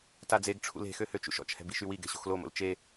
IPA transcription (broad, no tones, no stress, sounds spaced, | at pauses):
t a d͡z e ɡ ʈ͡ʂʰ ṵ l e̤ x ø h ø t͡ʃ ṵ ʃ ɔ̰ t͡ʃ h ɛ̤ b i ʃ y w i ɡ ɛ̤ ɕ o̤ x l o m o̰ l t͡ʃ e